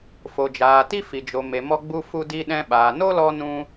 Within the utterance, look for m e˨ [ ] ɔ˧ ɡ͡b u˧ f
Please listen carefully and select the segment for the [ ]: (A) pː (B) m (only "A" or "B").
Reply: B